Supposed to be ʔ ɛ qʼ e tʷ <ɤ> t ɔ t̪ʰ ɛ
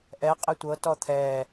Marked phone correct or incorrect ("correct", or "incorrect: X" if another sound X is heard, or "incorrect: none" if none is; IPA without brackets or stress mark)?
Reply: correct